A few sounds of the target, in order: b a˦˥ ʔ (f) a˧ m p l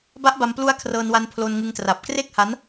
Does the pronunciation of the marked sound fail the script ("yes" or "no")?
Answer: yes